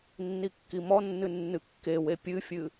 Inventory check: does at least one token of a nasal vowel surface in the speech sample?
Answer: no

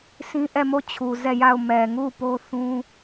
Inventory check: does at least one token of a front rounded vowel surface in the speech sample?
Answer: no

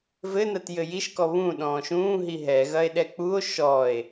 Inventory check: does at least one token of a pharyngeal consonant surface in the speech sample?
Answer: no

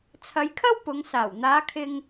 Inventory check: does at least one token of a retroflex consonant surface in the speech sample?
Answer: no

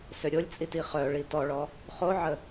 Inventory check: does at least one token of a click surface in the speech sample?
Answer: no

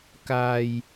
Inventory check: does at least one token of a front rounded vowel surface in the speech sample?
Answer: no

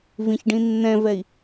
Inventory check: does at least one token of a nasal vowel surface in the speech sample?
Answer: yes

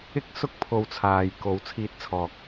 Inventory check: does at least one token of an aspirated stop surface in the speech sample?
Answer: yes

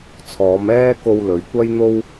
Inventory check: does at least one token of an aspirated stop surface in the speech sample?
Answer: yes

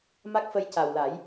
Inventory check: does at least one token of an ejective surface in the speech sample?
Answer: no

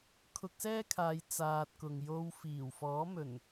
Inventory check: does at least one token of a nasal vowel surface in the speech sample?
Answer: no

